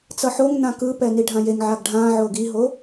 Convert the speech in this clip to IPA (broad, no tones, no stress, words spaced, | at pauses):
t͡sʌħoŋnã kɯpɛ niɖʱãjeŋʕaɡ ɖʱãʕo ɡiɦo